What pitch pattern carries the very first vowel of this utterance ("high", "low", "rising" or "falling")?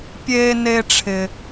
high